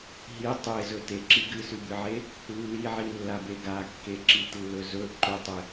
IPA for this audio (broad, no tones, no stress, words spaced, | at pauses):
ɦi tˤezɵ teǁi ɡɨsʉbɨʕe | lːiʕilːabe ɡakːeǁitlːɵ zɵ ǃɵtˤe